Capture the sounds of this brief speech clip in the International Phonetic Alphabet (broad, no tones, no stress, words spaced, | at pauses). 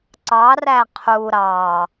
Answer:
ǀɑræ qʰu ɾɑ